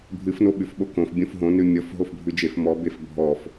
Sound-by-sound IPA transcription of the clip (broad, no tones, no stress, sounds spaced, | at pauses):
bʱ ɨ f n o ɓ ʉ f ɓ o k õ f bʲ õ f ɦ õ n ʉ mʲ ɔ f ɦ o f bʱ ʉ d͡ʒ e f m ɔ b e f bʱ ɔ f